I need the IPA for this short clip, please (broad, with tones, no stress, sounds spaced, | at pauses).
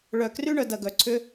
ɭ œ˧ k r y˥ ɳ œ˩˧ d ɐ˧ ɡ œ˧ ǀʰ ʏ˥